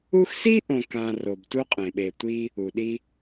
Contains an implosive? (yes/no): yes